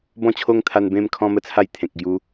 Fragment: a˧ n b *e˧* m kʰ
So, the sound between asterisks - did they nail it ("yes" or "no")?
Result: no